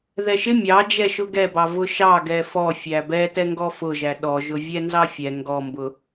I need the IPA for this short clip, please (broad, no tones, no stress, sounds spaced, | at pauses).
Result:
ð ɛ ʃ ɪ mʲ ɑ d͡ʒ ɛ ʃ ʊ ɡ ɛ b ɑ v ʊ ʃ ɑ ɡ ɛ f ɔ fʲ æ b ɛ t ɛ ŋ ɡ ɔ f ʊ ʒ æ ɗ ɔ ʒ ʊ vʲ ɛ n z ɑ fʲ ɛ ŋ ɡ ɔ m b ʊ